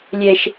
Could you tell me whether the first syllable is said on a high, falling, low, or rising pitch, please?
high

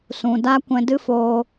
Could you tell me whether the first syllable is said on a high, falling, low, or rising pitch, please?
low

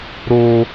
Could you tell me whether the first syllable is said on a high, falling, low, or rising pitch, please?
high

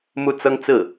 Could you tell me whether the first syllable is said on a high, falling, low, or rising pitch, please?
falling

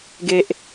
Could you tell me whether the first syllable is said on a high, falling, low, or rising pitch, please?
low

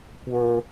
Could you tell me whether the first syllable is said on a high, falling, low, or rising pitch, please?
low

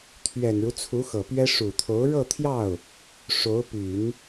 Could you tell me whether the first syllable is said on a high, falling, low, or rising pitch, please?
low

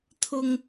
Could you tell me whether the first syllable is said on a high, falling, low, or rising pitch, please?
high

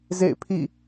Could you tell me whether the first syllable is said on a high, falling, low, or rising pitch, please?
falling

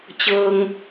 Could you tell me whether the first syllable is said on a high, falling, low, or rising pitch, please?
low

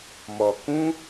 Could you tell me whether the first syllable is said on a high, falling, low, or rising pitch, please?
low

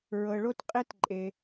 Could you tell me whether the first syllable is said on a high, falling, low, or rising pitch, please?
low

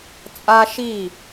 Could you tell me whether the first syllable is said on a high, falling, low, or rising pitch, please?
high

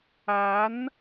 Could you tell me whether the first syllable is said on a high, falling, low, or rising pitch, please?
rising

